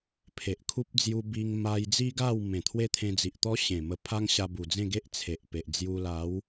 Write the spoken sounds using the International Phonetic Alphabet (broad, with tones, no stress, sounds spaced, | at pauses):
pʰ e˨ ʔ kʰ u˦ p̚ d͡z j u˧ b i˧ ŋ m a˧ j d͡z i˦ ɡ a˥˧ w m ẽ˨˩ t̪ʰ w e˦ t̪ʰ ẽ˧ d͡z i˨ ʔ t̪ ɔ˦ ɕ ẽ˨˩ m ə˧ pʰ a˦ ŋ ɕ a˧ b u˨˩ d͡z ẽ˥˧ ɡ e˦ ʔ t͡sʰ e˨ ʔ p e˨ ʔ d͡z j u˧ l a˨˦ w